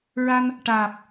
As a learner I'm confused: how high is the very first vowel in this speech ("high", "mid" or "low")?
low